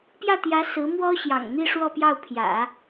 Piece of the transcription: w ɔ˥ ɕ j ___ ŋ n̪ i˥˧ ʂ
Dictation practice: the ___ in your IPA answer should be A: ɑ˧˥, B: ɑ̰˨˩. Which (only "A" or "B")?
B